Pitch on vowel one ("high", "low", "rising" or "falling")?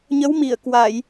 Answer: rising